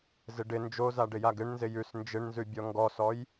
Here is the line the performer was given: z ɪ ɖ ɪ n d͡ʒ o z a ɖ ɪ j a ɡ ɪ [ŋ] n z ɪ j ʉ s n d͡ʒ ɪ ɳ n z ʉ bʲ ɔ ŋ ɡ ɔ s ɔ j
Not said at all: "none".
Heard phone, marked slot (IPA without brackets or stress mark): ɳ